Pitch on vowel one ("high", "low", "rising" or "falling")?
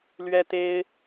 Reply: high